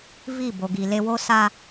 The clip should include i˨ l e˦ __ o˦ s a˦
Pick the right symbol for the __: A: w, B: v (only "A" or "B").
A